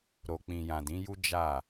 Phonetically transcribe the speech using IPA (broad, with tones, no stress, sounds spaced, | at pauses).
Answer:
ɾ o˨ k͡p ĩ˨ j ã˨ d ĩ˨˦ j u˦ d͡ʒ a˦˨